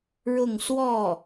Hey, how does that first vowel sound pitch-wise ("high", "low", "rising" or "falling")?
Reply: falling